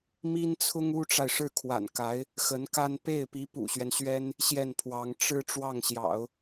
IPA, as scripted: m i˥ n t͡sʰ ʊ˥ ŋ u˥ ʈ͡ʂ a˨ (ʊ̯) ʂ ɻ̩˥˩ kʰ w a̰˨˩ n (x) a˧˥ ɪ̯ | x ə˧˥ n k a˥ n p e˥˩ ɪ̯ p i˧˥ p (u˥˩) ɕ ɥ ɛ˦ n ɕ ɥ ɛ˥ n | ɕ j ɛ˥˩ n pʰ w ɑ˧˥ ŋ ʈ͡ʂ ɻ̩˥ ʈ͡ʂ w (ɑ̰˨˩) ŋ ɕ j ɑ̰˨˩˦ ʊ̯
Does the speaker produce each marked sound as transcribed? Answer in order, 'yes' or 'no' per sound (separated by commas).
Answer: no, no, no, no